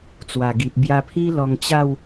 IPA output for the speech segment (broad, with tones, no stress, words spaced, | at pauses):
t͡swa˨˩ɡi˨p̚ bja˧pʰi˦ lɔ˧ŋt͡ɕa˥˧w